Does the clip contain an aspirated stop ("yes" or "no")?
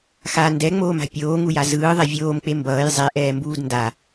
no